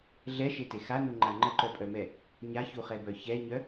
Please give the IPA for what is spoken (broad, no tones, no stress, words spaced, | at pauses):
ɮɛʃete xanuŋ͡ǃa ŋ͡ǃəǃœpʼœmɛ | ɲaçuχɛbœ çɛɲœ